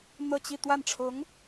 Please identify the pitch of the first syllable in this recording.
falling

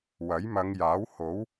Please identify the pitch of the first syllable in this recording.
rising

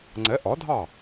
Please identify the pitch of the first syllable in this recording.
rising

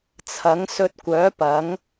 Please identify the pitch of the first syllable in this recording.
rising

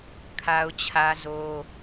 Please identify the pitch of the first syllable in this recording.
high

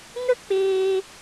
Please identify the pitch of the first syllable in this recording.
high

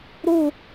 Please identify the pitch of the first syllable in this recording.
falling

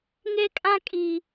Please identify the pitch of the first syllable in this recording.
high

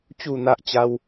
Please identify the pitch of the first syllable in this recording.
falling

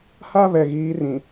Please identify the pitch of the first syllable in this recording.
high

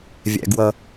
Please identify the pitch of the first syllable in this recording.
low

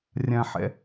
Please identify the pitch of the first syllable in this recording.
low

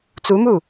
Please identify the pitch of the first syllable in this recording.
rising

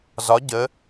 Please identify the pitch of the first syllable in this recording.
rising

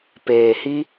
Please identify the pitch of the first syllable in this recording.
low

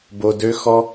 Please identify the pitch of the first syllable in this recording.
high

